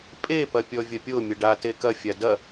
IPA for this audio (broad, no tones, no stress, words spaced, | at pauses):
pʼepɐ pʲɔvʲɐpʲo mʲəɖa tekɐfʲa dɐ